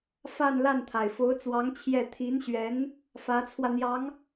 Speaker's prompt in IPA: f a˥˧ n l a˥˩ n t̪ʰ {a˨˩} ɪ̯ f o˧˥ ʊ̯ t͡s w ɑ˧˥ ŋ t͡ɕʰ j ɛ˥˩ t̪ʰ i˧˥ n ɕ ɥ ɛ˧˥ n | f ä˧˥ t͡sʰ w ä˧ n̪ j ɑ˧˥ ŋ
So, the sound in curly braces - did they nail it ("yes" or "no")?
yes